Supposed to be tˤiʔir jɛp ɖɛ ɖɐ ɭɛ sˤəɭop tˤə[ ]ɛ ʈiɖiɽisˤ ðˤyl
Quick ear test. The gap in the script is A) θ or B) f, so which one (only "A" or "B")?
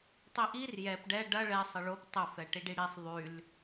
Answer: B